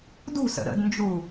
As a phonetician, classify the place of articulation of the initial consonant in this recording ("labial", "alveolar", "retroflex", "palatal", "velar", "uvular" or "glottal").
alveolar